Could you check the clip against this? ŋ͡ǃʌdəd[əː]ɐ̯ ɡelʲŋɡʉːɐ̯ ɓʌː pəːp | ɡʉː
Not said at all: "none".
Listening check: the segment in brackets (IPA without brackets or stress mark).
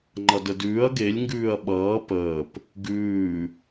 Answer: ʉː